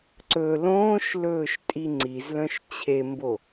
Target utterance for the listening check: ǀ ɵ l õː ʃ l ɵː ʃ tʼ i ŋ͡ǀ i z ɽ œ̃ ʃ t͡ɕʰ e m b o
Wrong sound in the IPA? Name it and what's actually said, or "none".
ɽ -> l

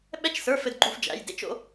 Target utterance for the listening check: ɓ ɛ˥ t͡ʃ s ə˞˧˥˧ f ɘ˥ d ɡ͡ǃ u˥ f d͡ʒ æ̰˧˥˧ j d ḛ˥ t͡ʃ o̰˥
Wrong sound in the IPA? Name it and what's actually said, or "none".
none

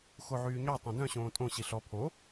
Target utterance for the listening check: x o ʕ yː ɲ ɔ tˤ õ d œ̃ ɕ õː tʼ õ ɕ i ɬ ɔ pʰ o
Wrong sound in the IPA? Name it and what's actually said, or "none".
none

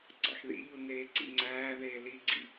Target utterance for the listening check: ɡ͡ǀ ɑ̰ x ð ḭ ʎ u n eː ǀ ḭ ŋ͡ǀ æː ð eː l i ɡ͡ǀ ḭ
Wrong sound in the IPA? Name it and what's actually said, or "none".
none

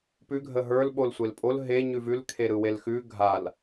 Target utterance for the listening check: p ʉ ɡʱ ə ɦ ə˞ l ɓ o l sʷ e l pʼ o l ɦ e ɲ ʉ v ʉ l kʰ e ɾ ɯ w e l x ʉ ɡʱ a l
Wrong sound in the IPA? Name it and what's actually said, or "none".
none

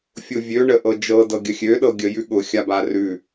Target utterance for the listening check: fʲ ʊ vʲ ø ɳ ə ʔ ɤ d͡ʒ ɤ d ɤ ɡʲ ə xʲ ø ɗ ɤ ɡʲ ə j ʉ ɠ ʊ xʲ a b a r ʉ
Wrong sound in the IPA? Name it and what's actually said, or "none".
none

